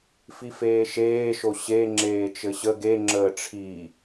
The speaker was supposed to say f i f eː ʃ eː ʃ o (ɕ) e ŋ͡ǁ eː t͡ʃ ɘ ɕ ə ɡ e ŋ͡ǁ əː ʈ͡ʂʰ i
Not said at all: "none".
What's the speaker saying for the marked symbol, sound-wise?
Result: ɕ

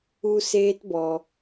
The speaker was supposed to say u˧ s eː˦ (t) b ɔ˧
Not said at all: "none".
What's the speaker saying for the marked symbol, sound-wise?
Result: t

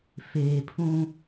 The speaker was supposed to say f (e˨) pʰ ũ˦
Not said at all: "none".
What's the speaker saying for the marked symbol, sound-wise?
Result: eː˨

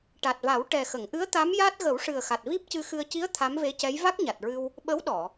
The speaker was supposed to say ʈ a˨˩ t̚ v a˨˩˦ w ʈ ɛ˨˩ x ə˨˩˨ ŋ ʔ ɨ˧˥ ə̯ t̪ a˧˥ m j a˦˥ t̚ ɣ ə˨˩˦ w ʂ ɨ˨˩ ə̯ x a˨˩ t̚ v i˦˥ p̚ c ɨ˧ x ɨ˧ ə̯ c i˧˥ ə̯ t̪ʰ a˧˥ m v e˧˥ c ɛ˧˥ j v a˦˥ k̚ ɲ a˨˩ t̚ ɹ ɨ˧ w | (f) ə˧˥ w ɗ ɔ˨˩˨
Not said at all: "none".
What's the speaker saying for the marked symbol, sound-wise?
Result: ɓ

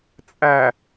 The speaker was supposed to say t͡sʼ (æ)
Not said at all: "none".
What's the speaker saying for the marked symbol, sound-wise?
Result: æ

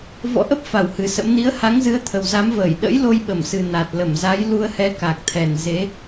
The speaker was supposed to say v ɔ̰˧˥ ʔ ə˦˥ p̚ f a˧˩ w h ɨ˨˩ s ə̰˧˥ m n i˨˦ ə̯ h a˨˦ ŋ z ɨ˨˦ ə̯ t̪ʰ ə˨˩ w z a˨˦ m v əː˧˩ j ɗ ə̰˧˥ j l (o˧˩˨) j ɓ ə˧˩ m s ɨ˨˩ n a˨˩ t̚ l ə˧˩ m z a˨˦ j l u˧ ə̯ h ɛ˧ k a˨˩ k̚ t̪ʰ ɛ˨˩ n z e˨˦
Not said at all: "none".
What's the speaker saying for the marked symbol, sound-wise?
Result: o˧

